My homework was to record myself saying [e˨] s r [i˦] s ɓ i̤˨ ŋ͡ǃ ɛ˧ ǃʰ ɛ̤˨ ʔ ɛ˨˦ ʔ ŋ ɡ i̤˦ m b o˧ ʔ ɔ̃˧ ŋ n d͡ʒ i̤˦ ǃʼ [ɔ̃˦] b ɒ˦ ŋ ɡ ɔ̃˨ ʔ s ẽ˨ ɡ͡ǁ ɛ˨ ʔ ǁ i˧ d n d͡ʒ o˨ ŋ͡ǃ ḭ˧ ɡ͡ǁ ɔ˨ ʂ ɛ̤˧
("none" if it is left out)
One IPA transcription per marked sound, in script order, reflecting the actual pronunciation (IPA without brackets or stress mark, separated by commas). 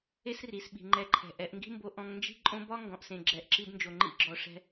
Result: e˦, i˨, õ˦